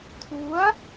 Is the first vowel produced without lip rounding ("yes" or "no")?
no